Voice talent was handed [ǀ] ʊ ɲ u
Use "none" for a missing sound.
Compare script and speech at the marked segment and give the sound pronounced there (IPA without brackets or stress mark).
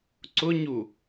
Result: ǀ